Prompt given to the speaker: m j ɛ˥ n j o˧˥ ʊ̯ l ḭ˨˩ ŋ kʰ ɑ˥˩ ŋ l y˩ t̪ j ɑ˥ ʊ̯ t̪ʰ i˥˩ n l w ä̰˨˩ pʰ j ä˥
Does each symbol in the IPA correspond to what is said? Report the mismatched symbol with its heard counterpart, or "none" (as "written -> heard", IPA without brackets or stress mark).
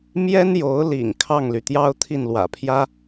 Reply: none